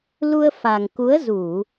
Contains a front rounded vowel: no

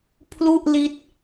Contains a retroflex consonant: no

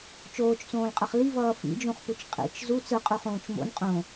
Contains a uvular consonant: yes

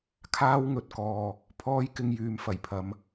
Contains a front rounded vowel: yes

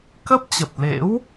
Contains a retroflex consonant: no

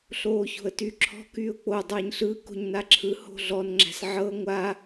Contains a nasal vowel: no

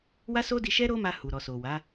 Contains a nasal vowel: no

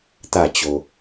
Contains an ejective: no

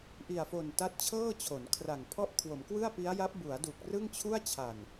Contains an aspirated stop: yes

